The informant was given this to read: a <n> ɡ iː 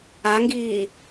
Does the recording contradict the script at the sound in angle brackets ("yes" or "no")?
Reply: yes